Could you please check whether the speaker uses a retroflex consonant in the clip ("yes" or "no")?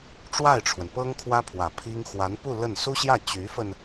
yes